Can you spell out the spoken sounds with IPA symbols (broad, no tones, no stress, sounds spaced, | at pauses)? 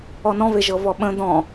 ɔ n ɔ̃ v e ʒ ɤ v ɔ ɓ ə̃ d̪ ɔ̃